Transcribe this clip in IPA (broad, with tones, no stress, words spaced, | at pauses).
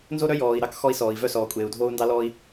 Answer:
nzo˥ɾœ˥jɔː˩i̯ ɾɑ˥k xɔ˧i̯sɔː˩i̯ vœ˧sɔː˩kʷʼeː˩u̯ dʱoː˧u̯ndɑ˧lɔː˧i̯